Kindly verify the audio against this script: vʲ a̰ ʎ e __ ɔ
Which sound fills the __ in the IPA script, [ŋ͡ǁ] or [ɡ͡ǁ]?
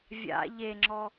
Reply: ŋ͡ǁ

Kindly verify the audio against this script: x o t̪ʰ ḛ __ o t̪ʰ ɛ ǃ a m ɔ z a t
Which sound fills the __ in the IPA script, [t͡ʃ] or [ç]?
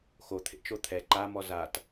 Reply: t͡ʃ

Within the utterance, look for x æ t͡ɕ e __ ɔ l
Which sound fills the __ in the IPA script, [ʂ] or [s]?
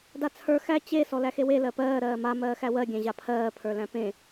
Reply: s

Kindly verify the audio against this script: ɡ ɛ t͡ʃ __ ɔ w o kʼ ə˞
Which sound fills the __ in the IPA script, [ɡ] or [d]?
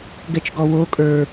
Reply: ɡ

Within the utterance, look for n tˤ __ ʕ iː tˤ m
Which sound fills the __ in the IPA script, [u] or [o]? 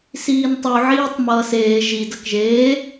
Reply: u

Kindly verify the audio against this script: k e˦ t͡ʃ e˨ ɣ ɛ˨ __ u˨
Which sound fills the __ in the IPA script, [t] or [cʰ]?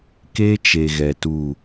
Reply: t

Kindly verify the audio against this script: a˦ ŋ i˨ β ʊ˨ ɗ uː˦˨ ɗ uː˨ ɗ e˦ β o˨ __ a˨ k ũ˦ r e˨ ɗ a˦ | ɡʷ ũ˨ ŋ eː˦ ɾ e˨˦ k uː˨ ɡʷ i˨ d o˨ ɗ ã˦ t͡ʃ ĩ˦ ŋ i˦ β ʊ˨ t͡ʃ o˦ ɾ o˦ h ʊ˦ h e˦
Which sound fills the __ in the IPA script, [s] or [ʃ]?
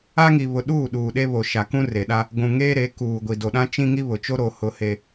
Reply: ʃ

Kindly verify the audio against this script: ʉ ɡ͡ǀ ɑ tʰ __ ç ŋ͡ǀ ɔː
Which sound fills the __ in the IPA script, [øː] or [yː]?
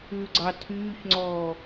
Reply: yː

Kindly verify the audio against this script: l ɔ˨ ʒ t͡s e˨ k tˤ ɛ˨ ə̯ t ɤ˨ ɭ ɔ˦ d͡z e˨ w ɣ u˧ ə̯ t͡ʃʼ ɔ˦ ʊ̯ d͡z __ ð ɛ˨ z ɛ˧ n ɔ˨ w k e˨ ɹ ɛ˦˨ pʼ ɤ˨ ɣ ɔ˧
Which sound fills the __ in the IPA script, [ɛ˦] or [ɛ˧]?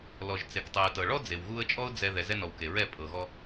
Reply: ɛ˧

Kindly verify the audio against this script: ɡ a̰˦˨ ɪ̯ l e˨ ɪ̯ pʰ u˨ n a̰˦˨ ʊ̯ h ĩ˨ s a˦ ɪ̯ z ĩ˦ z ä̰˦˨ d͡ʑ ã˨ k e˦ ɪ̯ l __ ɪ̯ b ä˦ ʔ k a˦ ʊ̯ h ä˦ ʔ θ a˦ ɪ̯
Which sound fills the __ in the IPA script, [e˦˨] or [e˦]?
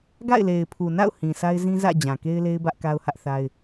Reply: e˦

